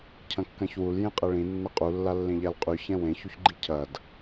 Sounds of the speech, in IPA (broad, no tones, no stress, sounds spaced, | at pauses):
cʰ ɐ̃ kː ɐ̃ ç w u l j ẽ qʼ ɛ ɭ ĩ nː ɐ qʼ u lː a lː ẽ ʎ a l qʼ y ç ɛ̃ w ẽ ç u ç ɡ͡ǃ i cʰ ɐ d